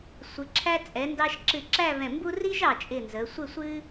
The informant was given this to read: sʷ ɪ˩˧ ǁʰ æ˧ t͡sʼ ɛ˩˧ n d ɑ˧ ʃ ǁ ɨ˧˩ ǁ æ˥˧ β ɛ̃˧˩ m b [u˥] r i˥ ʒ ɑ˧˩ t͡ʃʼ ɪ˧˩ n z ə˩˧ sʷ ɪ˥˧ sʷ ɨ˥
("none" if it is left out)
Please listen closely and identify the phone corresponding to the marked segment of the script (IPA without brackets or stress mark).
u˥